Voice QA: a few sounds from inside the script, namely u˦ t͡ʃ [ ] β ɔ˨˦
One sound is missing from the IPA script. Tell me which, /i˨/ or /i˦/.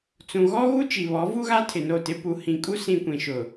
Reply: i˨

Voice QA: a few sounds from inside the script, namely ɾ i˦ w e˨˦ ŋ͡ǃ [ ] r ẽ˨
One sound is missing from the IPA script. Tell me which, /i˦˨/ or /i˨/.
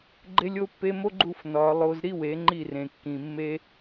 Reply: i˦˨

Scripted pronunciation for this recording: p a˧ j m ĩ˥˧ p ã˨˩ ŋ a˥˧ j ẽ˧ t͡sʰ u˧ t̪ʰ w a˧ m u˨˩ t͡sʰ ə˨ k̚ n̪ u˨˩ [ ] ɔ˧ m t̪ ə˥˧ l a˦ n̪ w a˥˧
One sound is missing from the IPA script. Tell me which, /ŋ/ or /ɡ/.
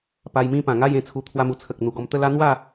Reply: ɡ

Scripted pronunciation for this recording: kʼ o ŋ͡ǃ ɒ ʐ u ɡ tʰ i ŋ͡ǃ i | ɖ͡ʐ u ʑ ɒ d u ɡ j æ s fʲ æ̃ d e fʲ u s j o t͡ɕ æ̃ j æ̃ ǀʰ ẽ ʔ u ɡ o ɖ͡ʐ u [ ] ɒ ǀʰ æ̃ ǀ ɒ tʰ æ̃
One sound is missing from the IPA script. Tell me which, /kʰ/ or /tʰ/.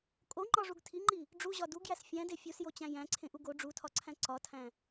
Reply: tʰ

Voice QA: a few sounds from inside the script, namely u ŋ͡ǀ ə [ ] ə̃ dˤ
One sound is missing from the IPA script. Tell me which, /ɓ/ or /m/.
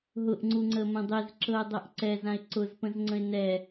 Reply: m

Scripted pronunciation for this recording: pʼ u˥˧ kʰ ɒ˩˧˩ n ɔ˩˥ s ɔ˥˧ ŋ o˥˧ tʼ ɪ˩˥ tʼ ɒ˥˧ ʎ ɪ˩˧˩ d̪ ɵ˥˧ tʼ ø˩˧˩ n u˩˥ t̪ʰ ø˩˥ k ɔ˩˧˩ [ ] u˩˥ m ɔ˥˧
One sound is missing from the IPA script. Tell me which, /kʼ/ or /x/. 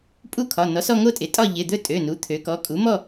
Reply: kʼ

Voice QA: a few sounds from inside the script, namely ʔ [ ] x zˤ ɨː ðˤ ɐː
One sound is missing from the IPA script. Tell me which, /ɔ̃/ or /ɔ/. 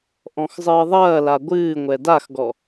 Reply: ɔ̃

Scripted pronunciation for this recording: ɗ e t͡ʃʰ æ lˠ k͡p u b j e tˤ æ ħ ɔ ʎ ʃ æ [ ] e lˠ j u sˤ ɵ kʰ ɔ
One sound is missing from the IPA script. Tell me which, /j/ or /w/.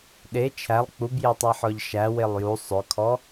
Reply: w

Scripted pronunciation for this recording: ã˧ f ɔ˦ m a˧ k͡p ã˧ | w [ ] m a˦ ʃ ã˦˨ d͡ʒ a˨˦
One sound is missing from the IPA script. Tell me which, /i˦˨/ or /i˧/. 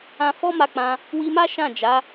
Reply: i˧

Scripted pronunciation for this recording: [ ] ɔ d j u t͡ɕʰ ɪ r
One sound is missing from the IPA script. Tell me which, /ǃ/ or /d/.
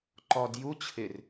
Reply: ǃ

